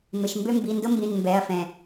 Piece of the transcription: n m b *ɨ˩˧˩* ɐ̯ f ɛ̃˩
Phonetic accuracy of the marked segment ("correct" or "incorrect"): incorrect